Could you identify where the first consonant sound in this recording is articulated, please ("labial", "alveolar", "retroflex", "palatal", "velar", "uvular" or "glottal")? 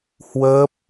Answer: glottal